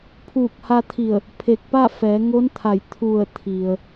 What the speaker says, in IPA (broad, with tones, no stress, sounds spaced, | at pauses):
pʰ uː˧˩ k̚ h a˧ t̪ʰ i˧˩ ə̯ | pʰ e˧˩ k̚ p a˥˨ f ɛː˩˧ ŋ o˧˥ n t̪ʰ a˧˩ j t̪ʰ u˧˩ ə̯ t̪ʰ i˩ ə̯